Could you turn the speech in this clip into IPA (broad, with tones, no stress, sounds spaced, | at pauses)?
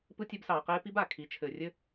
p ɯ˥ tʲ ɘ˥ b s ɑː˧ q eː˥ p i˥ b a˩ kʰ i˧˥ t͡ʃʰ ɘː˧ rʲ ɘ˥